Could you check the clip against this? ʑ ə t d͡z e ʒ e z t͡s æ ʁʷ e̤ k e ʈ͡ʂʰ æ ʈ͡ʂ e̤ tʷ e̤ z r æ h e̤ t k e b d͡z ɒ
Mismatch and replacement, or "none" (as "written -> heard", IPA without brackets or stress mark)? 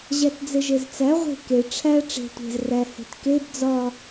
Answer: ə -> æ